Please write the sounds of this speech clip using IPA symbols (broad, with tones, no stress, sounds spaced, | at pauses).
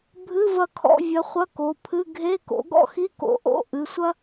bʱ ɨ˧˥˧ v ɐ˦˨ kʰ ɔ̰˧˥˧ vʲ ɐ˨˥ χʷ ɐ˧˥˧ k o˩˧˩ pʰ ɨ˧˥˧ ɡʱ e˧˥˧ k o̰˨˥ ɡ ɔ̰˥ x i˧˥˧ k o̰˨˥ ʔ o̰˧˥˧ ʔ ɨ˩˧˩ sʷ ɐ˥